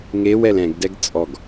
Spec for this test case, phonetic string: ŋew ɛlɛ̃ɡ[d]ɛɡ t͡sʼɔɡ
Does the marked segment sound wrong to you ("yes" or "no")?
no